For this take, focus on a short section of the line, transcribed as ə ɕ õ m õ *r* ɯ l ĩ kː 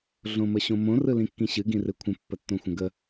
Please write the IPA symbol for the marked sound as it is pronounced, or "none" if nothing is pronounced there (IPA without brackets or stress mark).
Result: r